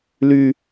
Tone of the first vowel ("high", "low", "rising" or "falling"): low